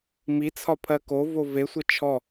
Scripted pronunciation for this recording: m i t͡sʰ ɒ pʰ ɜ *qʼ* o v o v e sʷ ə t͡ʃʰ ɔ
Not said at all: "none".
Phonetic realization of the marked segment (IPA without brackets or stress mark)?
k